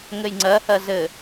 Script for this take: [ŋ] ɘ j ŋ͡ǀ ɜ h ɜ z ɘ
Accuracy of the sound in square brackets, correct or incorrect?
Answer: correct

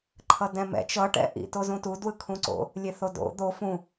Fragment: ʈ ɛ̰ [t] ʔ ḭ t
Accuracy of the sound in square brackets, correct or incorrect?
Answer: incorrect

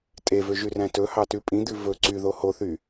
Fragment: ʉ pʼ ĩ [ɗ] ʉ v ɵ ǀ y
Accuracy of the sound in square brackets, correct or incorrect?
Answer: incorrect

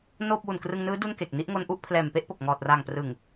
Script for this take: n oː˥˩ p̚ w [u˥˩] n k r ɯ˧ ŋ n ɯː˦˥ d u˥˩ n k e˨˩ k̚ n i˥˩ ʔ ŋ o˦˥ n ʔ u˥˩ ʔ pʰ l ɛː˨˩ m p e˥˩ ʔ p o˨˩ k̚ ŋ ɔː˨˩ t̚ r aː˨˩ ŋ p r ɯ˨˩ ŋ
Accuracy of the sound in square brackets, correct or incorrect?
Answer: incorrect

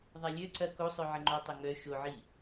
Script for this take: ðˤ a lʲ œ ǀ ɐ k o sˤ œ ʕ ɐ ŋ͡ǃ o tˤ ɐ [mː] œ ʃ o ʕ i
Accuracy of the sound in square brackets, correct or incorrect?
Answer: incorrect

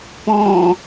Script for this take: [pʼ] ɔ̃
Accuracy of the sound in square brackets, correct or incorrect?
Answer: incorrect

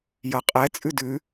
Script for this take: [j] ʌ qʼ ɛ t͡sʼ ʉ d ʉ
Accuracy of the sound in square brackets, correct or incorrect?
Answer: correct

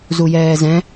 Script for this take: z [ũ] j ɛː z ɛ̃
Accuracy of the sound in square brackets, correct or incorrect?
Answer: incorrect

